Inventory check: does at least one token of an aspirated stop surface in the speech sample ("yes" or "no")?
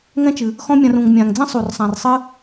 no